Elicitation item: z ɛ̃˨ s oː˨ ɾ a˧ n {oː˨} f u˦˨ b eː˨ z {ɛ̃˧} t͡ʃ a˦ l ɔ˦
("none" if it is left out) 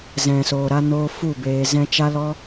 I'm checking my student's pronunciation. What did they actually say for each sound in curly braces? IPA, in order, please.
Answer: oː˧, ɛ̃˧

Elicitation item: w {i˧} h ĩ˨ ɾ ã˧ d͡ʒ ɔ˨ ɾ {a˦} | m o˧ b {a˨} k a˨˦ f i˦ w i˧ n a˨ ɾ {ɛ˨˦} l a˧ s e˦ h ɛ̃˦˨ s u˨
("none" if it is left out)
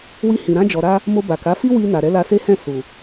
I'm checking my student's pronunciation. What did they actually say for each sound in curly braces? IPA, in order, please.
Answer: i˧, a˧, a˨, ɛ˨˦

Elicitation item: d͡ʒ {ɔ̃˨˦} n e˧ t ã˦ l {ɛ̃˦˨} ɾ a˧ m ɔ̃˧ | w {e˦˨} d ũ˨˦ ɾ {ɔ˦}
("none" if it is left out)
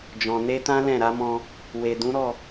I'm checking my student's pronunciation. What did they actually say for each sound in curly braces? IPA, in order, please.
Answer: ɔ̃˨, ɛ̃˦˨, e˨, ɔ˦˨

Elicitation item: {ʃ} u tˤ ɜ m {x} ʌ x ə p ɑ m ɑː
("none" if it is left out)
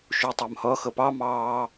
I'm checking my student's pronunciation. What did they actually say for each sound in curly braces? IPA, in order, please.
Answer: ʃ, h

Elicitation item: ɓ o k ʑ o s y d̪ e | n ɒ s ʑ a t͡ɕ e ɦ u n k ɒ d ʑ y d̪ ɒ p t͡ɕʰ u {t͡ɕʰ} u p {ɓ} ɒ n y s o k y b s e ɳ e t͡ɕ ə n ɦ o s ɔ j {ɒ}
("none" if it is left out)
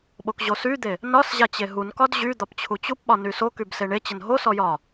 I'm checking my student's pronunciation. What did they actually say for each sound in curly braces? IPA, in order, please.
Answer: t͡ɕ, ɓ, ɒ

